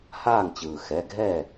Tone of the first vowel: falling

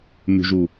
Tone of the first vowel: low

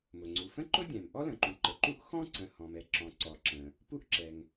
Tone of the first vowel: low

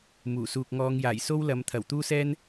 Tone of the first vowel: low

